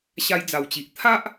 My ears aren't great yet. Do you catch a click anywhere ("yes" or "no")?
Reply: no